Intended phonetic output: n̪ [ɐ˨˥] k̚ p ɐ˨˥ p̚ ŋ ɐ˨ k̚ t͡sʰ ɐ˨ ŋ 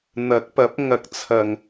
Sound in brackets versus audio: correct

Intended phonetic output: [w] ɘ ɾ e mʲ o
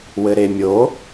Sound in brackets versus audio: correct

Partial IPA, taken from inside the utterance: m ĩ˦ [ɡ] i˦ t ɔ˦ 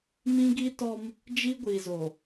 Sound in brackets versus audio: correct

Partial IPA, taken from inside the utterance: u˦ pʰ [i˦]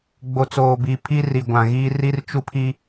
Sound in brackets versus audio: correct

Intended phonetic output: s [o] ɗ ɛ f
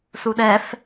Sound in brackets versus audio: incorrect: u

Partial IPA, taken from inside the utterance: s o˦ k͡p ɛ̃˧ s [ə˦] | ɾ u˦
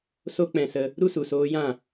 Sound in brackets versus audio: incorrect: ə˧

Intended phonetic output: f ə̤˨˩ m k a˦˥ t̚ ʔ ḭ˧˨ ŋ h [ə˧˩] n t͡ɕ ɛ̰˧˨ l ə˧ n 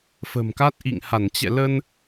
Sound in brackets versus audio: incorrect: a˧˩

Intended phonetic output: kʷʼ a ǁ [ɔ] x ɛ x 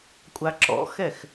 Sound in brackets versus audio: incorrect: ɔ̰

